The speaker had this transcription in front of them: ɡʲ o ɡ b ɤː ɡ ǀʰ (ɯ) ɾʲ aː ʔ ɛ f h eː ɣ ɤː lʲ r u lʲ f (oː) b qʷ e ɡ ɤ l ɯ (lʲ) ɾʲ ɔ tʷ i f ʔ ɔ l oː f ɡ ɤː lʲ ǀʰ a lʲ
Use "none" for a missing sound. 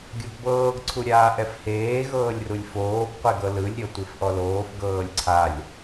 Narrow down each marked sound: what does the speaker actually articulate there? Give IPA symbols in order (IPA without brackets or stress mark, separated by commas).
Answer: u, oː, lʲ